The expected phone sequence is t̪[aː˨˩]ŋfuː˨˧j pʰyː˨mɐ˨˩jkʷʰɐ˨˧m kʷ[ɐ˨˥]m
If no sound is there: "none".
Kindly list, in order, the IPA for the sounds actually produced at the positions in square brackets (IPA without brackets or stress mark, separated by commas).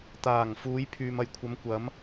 aː˨˩, ɐ˨˥